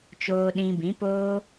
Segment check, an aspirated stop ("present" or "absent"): absent